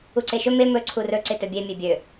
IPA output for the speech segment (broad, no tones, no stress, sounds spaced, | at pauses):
u ǀ e ʃ ɵ m e m ɵ ǀʰ u r ɵ ǀ ɪ t ɵ bʲ e mʲ e bʲ ø